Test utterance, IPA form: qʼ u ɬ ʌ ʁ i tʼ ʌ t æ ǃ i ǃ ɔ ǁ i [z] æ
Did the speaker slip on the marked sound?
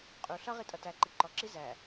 no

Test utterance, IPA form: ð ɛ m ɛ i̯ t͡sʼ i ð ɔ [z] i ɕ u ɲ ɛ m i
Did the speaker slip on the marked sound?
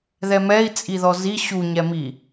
no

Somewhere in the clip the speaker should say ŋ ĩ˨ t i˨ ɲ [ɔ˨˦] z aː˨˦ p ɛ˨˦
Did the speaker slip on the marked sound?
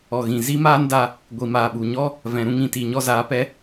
yes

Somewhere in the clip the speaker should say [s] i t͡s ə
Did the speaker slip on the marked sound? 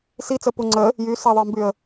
no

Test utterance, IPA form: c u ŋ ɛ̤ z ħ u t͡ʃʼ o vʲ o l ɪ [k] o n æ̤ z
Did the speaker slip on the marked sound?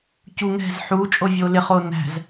yes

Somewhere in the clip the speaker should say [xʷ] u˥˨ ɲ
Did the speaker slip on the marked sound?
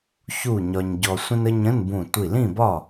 yes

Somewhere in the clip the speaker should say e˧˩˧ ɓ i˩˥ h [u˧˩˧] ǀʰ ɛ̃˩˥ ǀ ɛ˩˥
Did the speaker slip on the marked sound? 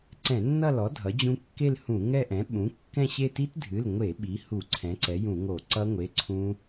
no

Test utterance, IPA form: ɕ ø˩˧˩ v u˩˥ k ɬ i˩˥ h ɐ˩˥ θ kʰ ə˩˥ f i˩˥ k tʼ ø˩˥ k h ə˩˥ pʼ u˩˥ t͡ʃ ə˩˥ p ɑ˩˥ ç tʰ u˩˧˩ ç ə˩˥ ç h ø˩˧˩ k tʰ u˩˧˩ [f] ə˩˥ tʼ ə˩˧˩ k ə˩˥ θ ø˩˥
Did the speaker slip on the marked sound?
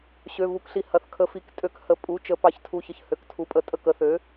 yes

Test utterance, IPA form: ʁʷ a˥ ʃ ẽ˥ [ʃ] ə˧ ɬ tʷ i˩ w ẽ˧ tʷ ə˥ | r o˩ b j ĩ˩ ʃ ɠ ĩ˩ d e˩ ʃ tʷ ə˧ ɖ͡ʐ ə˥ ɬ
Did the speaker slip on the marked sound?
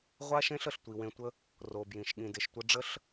yes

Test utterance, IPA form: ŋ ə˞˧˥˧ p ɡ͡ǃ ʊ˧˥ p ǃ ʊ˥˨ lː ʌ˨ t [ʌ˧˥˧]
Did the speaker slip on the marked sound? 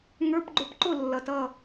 yes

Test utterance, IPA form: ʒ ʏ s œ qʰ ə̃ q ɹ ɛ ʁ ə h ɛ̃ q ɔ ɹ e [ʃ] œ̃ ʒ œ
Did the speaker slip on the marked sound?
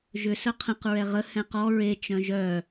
yes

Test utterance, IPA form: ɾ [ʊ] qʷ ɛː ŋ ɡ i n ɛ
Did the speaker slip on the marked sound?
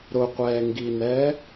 no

